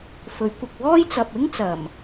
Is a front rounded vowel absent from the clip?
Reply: yes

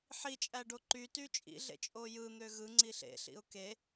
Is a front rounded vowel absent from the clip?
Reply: no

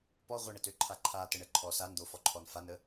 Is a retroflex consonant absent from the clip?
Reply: no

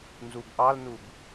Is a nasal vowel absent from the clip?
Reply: yes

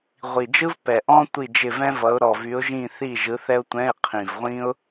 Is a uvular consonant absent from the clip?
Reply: no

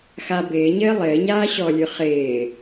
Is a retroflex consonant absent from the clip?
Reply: yes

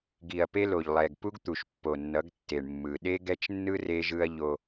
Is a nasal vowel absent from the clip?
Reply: yes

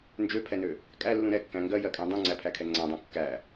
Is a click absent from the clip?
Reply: no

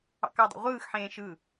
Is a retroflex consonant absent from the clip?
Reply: yes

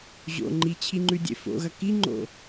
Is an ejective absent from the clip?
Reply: yes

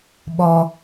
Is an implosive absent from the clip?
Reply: no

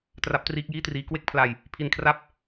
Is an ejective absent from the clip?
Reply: yes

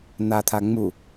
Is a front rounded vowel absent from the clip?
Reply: yes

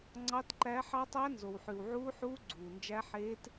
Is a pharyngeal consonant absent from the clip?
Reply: no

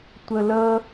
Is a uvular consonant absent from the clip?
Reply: yes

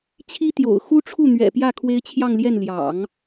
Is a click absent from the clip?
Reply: yes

